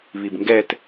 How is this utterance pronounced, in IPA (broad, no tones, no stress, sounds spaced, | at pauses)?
β i b ŋ ɡ ɛ t